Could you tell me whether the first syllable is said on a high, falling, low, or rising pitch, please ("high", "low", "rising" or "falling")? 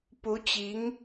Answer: rising